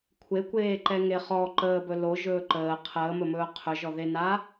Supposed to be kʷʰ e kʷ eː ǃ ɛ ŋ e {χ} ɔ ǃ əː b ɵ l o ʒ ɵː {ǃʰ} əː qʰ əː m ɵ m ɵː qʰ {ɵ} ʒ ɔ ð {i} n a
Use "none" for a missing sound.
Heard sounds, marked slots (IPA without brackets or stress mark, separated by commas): χ, ǃ, ɵ, e